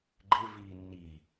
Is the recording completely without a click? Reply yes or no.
no